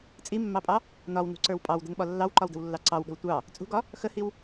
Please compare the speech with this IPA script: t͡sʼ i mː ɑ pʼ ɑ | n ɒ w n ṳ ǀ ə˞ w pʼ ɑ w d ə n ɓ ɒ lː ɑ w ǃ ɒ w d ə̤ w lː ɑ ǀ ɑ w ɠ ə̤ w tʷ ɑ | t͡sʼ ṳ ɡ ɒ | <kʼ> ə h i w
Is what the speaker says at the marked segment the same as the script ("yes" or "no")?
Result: no